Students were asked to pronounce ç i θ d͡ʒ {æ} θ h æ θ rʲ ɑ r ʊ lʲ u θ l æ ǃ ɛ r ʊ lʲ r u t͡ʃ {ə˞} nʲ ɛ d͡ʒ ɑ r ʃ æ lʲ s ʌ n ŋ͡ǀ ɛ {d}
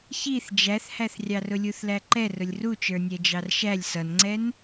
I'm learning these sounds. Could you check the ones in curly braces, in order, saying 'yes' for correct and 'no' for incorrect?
yes, yes, no

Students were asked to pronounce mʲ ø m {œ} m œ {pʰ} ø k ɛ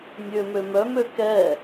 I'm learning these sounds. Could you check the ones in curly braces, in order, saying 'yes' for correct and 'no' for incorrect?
no, no

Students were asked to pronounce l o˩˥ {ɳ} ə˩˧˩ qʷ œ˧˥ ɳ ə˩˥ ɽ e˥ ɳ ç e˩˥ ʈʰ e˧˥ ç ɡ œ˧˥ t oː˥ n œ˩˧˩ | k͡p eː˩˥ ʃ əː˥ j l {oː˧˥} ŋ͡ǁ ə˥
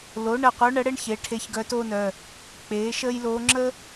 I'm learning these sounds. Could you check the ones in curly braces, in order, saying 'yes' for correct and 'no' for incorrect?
yes, yes

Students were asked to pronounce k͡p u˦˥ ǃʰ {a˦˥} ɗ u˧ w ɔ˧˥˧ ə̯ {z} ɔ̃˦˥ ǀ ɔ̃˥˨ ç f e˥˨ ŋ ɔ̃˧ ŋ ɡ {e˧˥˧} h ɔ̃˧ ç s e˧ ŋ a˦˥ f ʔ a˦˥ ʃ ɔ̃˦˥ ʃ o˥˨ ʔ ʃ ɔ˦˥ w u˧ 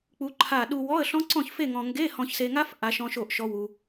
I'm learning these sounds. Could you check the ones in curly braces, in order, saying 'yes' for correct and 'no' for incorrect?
no, no, yes

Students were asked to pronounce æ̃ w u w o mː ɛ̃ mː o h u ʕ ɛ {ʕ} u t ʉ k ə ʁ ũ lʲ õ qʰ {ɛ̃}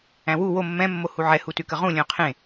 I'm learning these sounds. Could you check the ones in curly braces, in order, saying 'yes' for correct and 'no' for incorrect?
no, no

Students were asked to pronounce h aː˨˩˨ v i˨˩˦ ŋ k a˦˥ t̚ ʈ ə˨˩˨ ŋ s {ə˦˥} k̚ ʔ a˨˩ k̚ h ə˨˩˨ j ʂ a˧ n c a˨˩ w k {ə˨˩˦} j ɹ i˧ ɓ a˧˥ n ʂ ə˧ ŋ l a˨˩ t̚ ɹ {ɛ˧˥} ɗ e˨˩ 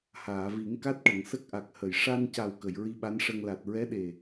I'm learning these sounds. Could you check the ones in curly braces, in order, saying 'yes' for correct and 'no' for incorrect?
yes, no, yes

